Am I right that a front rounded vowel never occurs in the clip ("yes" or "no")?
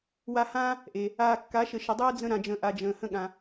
yes